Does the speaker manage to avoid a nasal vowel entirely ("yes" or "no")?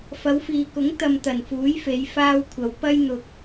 yes